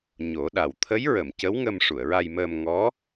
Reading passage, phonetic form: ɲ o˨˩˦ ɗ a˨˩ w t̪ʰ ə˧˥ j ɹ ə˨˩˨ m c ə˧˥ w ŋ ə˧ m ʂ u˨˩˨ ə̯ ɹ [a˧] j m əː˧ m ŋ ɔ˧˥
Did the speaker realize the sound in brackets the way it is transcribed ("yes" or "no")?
yes